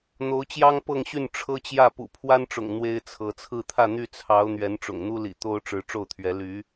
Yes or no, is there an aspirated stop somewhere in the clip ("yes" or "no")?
yes